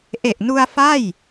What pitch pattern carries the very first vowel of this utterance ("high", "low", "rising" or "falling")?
low